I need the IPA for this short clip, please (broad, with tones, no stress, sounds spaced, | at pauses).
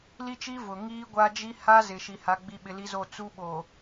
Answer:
l i˦ t͡ʃ i˦ v ʊ˨ ŋ iː˦ ɡʷ a˦ d͡ʒ i˦ h a˦ z ɪ˨ ʃ i˨ h a˨ ɡ͡b i˨ ɓ ɪ˨ l i˦ z o˦˨ t͡s u˦ ɓ o˨